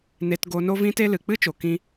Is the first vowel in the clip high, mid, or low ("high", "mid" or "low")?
mid